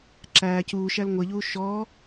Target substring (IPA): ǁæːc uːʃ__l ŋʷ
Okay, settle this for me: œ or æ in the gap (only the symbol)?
æ